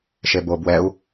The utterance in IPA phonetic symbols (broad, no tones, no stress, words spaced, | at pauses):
ʃebo bwɛu̯